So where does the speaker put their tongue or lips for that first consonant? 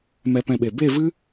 lips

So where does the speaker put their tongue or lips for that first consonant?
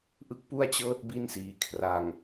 throat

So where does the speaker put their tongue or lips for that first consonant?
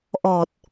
throat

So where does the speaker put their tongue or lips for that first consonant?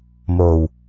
lips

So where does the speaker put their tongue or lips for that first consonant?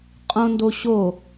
uvula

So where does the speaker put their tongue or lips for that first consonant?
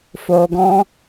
lips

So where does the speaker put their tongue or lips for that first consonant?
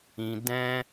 tongue tip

